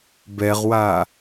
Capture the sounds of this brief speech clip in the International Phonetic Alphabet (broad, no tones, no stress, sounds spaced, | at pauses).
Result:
b ɛ ʁ w a